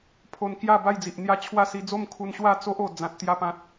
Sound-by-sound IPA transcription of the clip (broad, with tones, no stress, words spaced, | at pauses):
pʰo˧nkja˥˧ba˥˧jd͡zi˨ʔ n̪ja˦t͡ɕʰwa˥˧ si˧d͡zo˥˧mkʰu˧nɕwa˥˧ t͡so˦ʔ o˨˩ d͡zã˨t̚t̪ja˧pã˨t̚